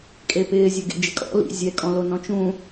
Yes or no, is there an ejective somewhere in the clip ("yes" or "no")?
yes